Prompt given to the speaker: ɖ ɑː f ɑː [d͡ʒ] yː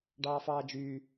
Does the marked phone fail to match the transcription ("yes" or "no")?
no